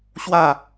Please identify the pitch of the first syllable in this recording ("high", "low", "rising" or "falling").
falling